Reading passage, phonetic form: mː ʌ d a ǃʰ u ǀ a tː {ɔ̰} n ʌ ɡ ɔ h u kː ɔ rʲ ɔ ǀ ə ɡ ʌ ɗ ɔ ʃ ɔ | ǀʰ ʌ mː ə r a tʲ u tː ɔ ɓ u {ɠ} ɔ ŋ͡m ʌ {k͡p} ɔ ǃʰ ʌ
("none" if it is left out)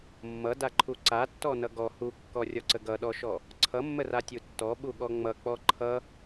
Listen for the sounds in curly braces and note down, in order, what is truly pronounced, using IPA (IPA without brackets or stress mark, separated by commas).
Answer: ɔ, ɠ, k͡p